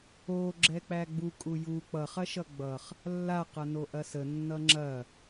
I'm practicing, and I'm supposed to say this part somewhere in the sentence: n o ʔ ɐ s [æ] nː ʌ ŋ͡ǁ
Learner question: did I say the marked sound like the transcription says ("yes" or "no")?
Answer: no